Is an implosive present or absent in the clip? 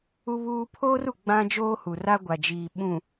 present